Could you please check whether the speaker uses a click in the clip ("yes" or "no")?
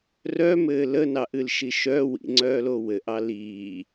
yes